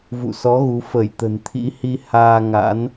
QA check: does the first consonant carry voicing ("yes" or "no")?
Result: yes